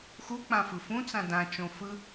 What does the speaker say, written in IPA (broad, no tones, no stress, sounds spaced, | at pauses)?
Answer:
x u k͡p ã f ɯ f ũ t͡s ã d ã t͡ʃ õ f ɯ